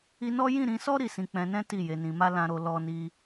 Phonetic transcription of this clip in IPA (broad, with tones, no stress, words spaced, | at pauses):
i˧nɔ˦ jĩ˦˨ɾĩ˧sɔ˦ ɾi˦˨sĩ˧ k͡pɛ̃˧nɛ̃˦ ti˦˨je˨˦nĩ˧ ma˦ lã˧ɾo˧ lɔ˦ni˦